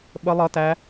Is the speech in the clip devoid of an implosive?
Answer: no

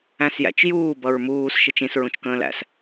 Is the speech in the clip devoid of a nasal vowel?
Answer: no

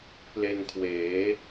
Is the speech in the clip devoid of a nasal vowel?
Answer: yes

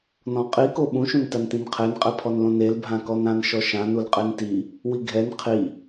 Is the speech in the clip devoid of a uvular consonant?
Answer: no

